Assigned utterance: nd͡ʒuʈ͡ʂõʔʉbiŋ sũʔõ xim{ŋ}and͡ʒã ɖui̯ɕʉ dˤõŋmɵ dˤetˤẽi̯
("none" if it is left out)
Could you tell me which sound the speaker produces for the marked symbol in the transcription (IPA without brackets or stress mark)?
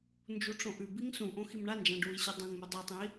ɳ